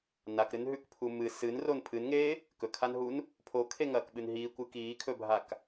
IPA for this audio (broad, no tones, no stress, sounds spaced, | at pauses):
n a k ɾ ɨ n ɦ ʉ k pʰ u m ɨ s ɨ n r o n pʰ ɨ n ŋ eː | k ɵ kʰ a n ɦ u n | pʰ o kʰ e ŋ ɐː k ɓ ɨ n ɦ iː kʷ ɨ k iː kʰ ɵ bʱ a k